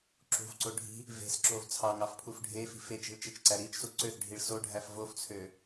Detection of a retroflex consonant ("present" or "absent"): present